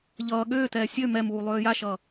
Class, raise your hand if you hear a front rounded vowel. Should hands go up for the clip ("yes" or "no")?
yes